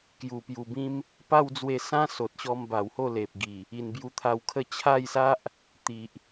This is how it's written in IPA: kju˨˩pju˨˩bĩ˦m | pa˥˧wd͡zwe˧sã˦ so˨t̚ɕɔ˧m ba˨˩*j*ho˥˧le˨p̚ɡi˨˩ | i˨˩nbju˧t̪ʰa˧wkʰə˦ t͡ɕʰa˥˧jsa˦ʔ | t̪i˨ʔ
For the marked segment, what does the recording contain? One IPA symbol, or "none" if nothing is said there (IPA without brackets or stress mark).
w